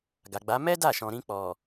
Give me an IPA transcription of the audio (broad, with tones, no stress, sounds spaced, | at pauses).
ɡ a˨ ɡ͡b a˨˦ m ɛ˦ d a˦˨ ʃ ɔ̃˨ ɾ ĩ˧ k͡p ɔ˨